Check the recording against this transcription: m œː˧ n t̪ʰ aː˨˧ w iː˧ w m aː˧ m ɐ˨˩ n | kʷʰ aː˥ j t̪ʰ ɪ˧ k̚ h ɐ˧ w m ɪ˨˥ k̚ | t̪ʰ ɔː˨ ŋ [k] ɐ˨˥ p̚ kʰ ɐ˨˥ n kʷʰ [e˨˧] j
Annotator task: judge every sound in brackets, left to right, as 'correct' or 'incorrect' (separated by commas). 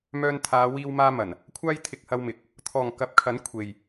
correct, incorrect